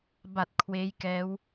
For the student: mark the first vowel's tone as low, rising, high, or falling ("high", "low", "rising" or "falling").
low